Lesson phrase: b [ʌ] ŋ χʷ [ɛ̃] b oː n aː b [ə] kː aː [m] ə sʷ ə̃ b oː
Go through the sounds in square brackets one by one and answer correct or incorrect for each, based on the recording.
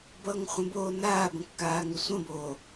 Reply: correct, incorrect: ə̃, incorrect: ə̃, incorrect: ŋ

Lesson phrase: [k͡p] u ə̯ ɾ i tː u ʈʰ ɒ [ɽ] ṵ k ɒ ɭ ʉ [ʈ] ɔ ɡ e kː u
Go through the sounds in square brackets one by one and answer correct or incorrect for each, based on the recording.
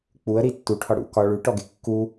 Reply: correct, correct, correct

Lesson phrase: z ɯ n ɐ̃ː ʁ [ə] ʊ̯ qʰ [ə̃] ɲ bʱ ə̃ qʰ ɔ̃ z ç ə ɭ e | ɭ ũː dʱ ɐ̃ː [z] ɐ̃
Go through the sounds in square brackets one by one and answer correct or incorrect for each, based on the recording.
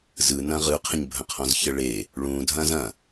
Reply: incorrect: ɯ, correct, correct

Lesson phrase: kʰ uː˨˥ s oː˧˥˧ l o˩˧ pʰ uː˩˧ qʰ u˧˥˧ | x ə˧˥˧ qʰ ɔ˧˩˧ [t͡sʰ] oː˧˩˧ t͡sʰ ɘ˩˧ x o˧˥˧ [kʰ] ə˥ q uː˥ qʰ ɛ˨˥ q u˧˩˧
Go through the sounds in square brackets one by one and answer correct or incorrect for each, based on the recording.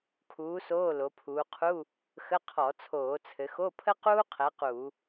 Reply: correct, incorrect: pʰ

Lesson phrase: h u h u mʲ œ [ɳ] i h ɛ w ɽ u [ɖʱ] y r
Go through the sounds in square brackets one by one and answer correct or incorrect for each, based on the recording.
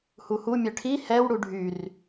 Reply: incorrect: ʈʰ, correct

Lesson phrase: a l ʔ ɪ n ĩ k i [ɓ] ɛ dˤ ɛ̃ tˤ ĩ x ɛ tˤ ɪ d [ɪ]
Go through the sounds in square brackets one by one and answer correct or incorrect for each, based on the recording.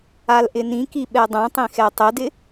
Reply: correct, correct

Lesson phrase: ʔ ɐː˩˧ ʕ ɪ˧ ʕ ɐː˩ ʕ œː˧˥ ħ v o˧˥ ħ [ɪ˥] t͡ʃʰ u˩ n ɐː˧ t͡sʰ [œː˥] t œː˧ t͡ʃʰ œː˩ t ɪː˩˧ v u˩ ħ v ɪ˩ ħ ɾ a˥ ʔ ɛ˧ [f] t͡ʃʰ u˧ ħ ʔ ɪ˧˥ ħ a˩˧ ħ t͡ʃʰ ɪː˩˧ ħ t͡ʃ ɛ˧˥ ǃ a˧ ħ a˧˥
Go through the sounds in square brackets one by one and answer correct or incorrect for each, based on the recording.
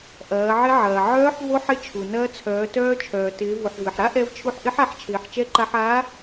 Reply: incorrect: ɪ˧, incorrect: œː˩˧, incorrect: v

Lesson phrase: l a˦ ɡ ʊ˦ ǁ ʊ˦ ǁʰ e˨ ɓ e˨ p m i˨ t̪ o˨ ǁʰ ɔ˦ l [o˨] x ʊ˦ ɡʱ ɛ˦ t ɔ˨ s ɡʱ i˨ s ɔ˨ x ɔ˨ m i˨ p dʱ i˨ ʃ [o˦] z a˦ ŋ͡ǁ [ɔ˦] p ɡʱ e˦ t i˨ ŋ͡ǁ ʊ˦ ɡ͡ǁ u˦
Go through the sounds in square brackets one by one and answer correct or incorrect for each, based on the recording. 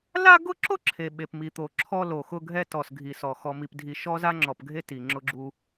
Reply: correct, incorrect: ɔ˦, incorrect: ɔ˨

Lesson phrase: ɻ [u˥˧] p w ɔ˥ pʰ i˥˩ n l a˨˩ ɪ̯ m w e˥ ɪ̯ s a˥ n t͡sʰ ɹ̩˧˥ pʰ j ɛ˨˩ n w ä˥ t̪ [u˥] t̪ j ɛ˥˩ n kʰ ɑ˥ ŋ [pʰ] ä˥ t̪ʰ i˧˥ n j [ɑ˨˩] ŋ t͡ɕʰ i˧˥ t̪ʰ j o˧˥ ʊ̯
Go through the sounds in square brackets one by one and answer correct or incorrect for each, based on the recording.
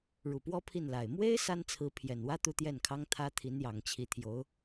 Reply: incorrect: u˨˩, incorrect: u˥˧, incorrect: t̪ʰ, correct

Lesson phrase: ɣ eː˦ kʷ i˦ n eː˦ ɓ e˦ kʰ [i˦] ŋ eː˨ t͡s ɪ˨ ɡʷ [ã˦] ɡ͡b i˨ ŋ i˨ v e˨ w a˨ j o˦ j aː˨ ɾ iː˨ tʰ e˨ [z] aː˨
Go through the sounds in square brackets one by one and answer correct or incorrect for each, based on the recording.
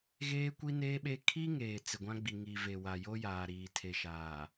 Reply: correct, correct, incorrect: ʃ

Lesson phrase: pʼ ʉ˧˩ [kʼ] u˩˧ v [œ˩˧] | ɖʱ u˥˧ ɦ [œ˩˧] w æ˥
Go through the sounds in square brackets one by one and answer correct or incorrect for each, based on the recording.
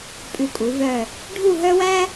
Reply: correct, incorrect: œ˧˩, incorrect: œ˥

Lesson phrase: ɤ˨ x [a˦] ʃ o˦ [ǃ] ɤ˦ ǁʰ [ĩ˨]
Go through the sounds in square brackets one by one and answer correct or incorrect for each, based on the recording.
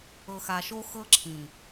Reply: incorrect: a˨, incorrect: x, correct

